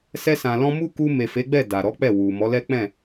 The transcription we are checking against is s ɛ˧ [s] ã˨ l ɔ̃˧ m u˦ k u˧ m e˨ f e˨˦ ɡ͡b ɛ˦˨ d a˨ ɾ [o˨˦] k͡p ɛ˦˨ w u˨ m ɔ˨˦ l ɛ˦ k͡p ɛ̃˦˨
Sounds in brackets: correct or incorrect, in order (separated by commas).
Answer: correct, incorrect